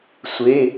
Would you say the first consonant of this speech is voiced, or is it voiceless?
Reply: voiceless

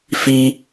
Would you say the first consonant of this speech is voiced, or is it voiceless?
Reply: voiceless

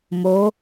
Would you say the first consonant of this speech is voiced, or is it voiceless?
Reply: voiced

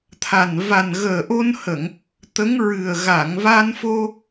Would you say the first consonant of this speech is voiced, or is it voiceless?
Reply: voiceless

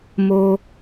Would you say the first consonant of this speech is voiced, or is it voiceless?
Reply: voiced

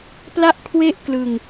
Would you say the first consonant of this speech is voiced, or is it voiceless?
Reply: voiceless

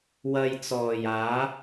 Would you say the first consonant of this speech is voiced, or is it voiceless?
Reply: voiced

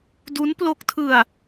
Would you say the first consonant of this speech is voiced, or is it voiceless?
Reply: voiced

